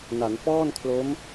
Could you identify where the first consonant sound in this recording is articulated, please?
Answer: alveolar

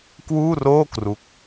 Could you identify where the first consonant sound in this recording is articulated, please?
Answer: velar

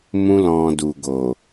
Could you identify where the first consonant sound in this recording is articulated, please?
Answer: labial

